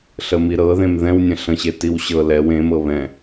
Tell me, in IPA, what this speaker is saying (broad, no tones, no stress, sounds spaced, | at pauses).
ɬ ə m i ɾ ɤ ð ẽ m ð ɛ̃ w nʲ ə̃ ɬ ə̃ ɕ e t i w ɕ ɤ l ɛ w ẽ m ɤ β ɛ̃